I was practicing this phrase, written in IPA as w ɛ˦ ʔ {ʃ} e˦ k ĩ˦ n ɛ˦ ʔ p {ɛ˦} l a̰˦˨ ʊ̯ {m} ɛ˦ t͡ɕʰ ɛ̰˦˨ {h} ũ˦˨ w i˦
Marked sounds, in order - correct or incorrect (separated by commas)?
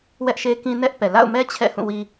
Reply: correct, incorrect, correct, correct